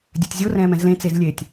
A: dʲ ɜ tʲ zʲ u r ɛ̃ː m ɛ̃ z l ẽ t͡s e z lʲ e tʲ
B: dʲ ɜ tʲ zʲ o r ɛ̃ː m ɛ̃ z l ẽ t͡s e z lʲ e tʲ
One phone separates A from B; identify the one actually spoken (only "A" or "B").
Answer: B